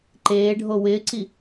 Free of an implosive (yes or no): yes